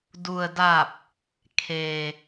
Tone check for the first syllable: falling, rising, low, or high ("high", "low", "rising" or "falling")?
low